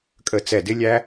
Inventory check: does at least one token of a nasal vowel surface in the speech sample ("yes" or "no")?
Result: no